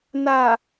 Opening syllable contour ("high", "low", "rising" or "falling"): low